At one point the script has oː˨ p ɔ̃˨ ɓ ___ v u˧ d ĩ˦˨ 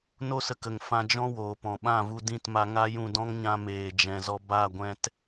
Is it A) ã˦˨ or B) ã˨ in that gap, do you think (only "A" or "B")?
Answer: A